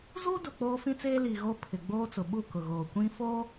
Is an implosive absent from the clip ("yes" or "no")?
no